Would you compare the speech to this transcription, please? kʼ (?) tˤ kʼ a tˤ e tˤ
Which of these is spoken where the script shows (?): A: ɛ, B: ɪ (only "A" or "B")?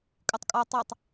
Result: B